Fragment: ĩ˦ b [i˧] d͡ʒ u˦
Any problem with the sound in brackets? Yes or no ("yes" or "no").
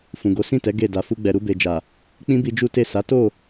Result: no